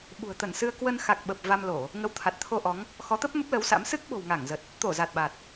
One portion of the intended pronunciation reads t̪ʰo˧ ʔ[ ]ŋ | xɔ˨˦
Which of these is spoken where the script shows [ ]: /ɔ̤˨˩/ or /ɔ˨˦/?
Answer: ɔ˨˦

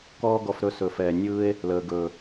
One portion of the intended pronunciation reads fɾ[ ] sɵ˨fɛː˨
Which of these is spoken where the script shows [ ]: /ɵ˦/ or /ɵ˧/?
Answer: ɵ˧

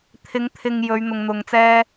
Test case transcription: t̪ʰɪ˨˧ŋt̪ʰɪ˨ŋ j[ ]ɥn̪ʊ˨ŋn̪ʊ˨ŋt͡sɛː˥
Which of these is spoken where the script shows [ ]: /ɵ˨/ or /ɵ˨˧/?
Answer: ɵ˨˧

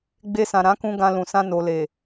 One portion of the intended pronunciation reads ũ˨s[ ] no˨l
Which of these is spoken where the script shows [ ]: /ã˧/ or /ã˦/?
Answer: ã˧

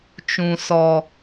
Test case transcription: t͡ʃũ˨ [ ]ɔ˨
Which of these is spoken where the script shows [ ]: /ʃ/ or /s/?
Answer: s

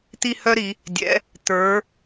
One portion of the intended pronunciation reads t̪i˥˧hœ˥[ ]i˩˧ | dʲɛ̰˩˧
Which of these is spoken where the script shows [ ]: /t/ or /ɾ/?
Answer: ɾ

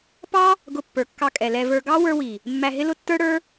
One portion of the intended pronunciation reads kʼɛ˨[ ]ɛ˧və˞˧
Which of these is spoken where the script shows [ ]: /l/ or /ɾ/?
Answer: l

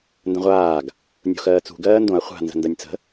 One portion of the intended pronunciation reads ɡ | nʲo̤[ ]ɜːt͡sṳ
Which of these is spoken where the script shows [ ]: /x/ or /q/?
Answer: x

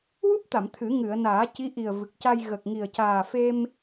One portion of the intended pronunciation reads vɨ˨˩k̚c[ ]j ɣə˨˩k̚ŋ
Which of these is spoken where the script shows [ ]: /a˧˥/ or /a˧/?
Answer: a˧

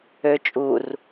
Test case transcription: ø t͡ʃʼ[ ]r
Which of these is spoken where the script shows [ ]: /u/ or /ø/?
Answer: u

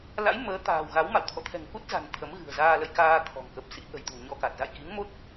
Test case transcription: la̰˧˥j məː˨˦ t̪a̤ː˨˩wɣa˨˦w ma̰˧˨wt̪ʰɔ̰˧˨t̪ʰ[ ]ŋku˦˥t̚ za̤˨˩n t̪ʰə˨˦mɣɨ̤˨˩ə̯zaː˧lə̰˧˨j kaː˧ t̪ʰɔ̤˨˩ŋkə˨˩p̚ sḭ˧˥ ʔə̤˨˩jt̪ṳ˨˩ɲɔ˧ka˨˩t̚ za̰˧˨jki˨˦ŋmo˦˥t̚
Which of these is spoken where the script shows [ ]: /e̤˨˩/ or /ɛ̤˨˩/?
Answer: ɛ̤˨˩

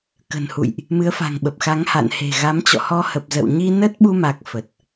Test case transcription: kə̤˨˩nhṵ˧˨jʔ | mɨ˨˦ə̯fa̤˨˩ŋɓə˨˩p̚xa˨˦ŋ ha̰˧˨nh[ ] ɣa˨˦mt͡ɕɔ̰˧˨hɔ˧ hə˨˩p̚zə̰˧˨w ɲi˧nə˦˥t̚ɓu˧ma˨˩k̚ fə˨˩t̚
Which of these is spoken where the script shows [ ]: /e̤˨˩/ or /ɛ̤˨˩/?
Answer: e̤˨˩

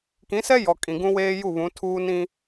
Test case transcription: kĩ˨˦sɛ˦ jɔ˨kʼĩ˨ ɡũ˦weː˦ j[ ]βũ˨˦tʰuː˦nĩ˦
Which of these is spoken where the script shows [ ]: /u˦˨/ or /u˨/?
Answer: u˦˨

